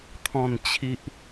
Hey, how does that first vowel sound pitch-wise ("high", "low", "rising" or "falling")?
low